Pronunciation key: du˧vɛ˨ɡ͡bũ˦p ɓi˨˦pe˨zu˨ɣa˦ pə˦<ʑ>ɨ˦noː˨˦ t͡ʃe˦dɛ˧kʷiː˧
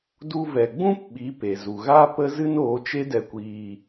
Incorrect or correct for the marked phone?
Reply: incorrect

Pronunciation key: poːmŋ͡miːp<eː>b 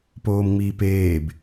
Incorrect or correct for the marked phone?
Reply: correct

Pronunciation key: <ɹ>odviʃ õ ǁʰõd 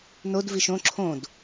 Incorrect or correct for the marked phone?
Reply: incorrect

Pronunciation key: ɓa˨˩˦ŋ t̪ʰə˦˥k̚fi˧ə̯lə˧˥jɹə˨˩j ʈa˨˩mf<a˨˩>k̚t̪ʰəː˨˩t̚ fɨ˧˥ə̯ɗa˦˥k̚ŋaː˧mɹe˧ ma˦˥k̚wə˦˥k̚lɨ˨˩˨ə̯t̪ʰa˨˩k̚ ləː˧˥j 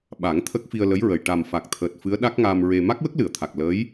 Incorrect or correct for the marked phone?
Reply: correct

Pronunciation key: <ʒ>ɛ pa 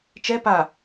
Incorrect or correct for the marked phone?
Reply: incorrect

